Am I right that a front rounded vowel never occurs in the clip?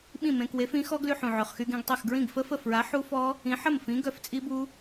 no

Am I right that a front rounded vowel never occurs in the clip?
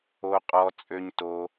no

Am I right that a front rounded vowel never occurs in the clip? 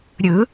yes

